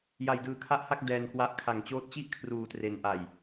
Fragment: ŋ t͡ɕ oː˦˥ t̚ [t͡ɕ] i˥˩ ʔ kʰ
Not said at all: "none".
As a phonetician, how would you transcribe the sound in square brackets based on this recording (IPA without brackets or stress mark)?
t͡ɕ